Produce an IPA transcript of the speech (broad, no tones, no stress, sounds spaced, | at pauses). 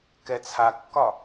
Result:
k ɛ t͡sʰ a kː ɒ